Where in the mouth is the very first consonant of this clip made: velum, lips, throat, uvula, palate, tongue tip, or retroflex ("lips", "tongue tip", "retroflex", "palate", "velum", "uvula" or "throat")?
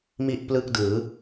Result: lips